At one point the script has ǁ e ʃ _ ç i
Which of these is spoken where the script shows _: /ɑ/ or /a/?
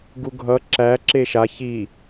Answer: a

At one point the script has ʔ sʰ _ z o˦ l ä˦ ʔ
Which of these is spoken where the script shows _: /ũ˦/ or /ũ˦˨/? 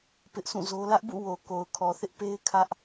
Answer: ũ˦˨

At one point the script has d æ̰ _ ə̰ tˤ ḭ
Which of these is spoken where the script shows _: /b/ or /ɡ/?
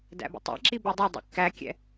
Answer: b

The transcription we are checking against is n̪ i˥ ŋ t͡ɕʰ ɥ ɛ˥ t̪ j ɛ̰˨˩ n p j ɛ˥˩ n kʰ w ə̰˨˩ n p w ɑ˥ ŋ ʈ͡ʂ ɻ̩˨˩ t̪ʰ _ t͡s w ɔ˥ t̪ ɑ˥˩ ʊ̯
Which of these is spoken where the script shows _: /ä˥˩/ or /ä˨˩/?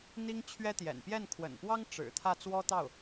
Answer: ä˥˩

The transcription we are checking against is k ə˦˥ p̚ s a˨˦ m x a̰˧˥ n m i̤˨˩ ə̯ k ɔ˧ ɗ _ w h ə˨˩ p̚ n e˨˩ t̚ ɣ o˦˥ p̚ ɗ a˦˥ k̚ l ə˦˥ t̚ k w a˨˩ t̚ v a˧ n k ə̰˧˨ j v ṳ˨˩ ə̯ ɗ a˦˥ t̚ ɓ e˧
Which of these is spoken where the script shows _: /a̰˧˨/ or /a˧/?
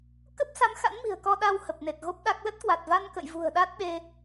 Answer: a˧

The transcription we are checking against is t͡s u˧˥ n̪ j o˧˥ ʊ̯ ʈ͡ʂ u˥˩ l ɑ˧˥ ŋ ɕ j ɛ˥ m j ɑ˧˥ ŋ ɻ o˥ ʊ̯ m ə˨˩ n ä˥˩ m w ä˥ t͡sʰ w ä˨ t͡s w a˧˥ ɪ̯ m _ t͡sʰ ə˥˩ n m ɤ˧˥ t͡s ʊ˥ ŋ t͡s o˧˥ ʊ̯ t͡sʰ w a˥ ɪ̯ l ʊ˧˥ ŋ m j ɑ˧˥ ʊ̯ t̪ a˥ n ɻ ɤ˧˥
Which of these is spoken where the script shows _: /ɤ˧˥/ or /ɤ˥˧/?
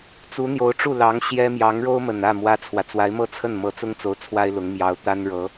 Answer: ɤ˥˧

